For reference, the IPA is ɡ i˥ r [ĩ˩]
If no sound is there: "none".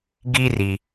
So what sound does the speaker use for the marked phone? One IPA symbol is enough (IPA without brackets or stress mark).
i˩